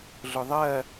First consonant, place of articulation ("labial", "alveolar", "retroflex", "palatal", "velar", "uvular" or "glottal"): alveolar